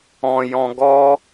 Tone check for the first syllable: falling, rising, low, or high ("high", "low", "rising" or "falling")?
low